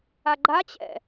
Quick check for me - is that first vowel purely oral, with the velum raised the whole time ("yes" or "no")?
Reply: yes